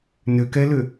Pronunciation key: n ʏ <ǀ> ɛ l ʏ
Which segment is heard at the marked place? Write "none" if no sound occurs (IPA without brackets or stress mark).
k